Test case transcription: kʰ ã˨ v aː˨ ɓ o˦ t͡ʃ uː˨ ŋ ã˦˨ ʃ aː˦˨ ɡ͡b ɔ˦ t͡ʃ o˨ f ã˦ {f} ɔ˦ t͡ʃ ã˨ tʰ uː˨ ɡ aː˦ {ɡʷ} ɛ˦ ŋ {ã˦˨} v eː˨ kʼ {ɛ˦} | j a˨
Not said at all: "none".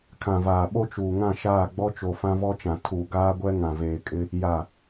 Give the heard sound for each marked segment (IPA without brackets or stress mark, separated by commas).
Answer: v, ɡʷ, ã˨, ɪ˦